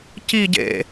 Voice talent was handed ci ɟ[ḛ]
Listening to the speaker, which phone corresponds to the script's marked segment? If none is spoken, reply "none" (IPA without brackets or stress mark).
ḛ